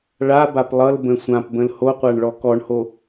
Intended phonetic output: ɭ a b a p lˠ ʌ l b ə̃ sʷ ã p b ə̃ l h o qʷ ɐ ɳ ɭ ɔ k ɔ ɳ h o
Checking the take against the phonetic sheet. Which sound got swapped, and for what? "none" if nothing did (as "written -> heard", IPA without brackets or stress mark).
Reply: ɐ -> a